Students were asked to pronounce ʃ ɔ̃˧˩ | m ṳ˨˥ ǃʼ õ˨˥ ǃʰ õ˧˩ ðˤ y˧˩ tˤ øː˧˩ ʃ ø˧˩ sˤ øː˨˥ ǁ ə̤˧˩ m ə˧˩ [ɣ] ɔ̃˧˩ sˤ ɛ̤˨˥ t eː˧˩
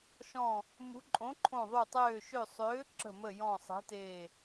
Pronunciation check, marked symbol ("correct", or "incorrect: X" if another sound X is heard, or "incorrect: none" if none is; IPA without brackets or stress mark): incorrect: j